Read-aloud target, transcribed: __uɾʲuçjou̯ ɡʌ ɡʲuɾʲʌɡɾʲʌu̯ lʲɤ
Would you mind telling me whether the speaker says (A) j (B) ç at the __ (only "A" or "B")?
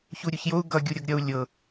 B